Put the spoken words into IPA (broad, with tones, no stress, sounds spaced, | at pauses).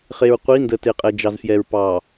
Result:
χ e˨ ɹ qʷ i˨˦ n d ə˨ t e˨ qʼ ɛ˨ d͡ʒ ɑ˨ z f j ɛ˨ ɹ p ɑ˨